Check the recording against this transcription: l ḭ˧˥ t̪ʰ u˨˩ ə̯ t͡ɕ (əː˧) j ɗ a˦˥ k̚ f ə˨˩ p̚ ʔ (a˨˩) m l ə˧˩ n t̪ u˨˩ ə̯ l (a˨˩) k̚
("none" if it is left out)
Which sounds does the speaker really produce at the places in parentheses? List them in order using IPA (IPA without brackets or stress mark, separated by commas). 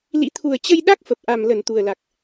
ə˧, a˨˩, a˨˩